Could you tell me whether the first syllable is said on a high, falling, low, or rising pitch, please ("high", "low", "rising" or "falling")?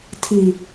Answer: low